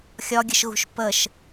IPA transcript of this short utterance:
xʲ ɒ ɡʲ ə ʃ ɣ ṳ ʃ p ə ʃ

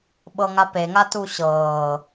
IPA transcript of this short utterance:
ɓ ɤ ŋ a p e ŋ a t u ɕ ɤː

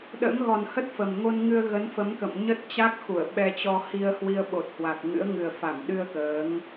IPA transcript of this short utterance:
ɗ ə̰ː˧˥ ŋ ɣ ɔ˨˩ n h ə˦˥ t̚ f ə˨˩ m ŋ o˧ n ŋ ɨ˧ ə̯ ɣ ə˨˦ n f ə˨˦ m k ə̰˧˨ m ɲ ə˦˥ t̚ t͡ɕ a˦˥ k̚ x u˧˩ ə̯ ɓ ɛ˧ t͡ɕ ɔ˧ h i˧ ə̯ h w i˧ ə̯ ɓ o˨˩ t̚ h w a˨˩ k̚ ŋ ɨ̰˧˥ ə̯ ŋ ɨ˨˩ ə̯ f a˧˩ m ɗ ɨ˧ ə̯ k əː˨˦ ŋ

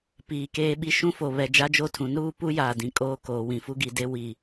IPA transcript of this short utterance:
p iː˨ k eː˦ ɓ i˦ ʃ ũ˦ f o˨ β ɛ˨ d͡ʒ a˦ d͡ʒ o˦ tʰ ũ˨˦ n ɾ uː˦ p u˦ j aː˨ d ĩ˨ kʼ oː˦ k oː˨ w ĩ˨ f u˦ ɡ i˨ d e˦ w i˨

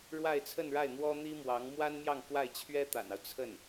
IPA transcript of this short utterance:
ɻ w a˥˧ ɪ̯ t͡sʰ ə˥˧ n ɻ a˥˩ ɪ̯ n̪ w ɔ˥ n̪ i˥ m w ɑ˧˥ ŋ m w a˥ n m j ɑ˥˧ ŋ k w a˥˩ ɪ̯ t͡ɕʰ ɥ ɛ˥ t̪ a̰˨˩ n ɑ˦ ʊ̯ t͡sʰ ə˥˩ n

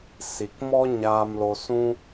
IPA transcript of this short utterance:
s i˨ k m ɔ˦ ɲ aː˧ m l o˧ s ũ˦

